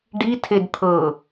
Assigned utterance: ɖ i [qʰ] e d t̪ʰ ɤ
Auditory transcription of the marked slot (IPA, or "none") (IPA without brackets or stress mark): tʰ